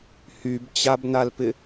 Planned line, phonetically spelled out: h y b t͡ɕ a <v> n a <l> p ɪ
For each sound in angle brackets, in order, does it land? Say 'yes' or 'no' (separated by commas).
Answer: no, yes